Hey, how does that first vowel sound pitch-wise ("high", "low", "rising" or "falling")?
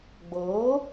rising